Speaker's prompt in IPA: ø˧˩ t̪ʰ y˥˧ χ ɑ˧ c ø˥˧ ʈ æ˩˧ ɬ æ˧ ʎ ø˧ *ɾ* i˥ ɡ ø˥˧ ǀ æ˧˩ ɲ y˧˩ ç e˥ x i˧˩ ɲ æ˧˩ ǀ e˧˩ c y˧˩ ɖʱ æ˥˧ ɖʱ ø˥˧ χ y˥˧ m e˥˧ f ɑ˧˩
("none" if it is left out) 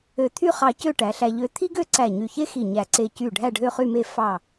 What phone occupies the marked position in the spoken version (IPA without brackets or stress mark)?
t̪ʰ